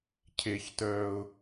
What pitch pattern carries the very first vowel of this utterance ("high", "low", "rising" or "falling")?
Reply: high